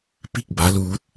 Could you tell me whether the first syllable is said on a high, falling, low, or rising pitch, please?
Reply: falling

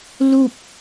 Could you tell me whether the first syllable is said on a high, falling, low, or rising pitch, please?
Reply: falling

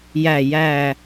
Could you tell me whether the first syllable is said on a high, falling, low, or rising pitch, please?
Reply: low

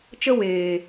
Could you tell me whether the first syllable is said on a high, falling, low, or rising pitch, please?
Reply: high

